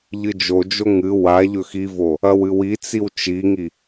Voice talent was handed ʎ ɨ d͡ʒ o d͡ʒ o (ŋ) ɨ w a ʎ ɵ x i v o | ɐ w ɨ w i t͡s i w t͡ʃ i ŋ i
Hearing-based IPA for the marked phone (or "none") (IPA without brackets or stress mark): ŋ